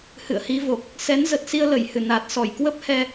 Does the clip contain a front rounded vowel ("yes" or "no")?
no